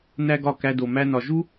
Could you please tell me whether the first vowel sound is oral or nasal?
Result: oral